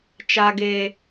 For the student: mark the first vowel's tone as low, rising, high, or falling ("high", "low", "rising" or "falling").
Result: high